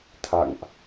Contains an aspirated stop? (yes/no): yes